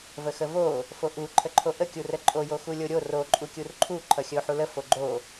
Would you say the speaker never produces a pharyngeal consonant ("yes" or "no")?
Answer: no